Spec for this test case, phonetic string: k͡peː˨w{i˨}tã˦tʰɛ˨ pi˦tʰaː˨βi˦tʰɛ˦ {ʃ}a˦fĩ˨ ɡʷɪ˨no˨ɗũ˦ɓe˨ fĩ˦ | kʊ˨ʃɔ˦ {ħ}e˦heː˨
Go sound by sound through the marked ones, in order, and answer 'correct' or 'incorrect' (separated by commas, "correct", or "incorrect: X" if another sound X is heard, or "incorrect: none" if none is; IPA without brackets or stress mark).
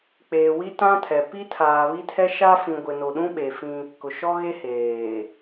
incorrect: i˦, correct, incorrect: ɣ